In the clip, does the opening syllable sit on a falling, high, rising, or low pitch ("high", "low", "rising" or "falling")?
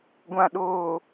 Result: low